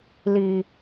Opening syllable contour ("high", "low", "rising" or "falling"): low